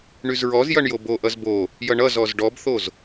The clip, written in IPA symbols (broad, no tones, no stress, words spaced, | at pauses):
ɳyzɹɔzjʌɳ joboʔʌz bo | jʌɳʌzɔz ɖɔbθoz